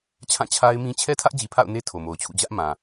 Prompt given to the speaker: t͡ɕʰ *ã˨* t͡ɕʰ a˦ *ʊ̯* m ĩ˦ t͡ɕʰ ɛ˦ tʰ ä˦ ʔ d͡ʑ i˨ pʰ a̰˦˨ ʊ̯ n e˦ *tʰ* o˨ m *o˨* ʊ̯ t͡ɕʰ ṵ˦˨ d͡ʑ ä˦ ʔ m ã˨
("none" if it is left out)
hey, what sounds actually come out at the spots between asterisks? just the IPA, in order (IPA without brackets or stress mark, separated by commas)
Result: ã˦˨, ɪ̯, tʰ, o˨